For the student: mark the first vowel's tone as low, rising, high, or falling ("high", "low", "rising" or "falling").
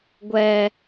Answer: low